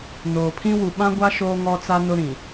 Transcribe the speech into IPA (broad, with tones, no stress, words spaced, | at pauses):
noː˨pʰĩ˦ wu˨ɓã˦ɡʷa˦ ʃoː˦ŋɔ˦t͡sa˦ nʊ˦ɾĩ˨